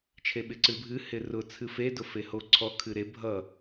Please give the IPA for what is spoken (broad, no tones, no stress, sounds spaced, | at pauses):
t͡ʃʰ e ɓ ɪ ǀ ɨ bʱ ɨ h ɪ r ʊ t͡sʰ ɨ f e d ʊ f e h o ǀʰ ɔ kʰ ɨ ɾ e bʱ ʌ